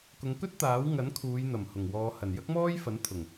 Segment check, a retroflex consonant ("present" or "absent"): absent